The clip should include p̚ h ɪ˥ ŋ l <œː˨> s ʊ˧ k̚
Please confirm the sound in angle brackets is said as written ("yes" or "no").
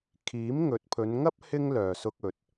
yes